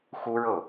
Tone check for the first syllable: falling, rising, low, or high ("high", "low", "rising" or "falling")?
high